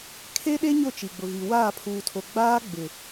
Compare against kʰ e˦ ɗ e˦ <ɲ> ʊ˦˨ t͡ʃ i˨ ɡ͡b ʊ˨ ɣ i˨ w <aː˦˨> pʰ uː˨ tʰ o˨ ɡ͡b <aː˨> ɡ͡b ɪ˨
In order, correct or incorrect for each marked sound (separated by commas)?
correct, correct, incorrect